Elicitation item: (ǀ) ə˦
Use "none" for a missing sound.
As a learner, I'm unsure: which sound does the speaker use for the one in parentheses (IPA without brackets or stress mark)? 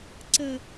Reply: ǀ